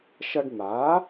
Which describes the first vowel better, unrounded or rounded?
unrounded